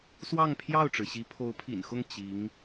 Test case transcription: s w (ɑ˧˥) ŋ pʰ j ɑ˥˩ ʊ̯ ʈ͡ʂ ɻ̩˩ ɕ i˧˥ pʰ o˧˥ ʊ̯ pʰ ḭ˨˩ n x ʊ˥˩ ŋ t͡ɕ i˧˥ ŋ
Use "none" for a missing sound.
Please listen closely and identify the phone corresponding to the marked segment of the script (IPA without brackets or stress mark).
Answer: ɑ˥˧